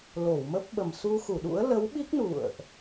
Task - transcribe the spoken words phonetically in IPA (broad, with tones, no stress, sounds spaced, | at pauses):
l o˧˩ w m ə˦˥ p̚ ɓ ə˨˩ m s u˧ x u˧˩ ɗ ṵ˧˥ ə̯ l ə˨˦ w ɓ i˦˥ k̚ n ṵ˧˨ ə̯ ʔ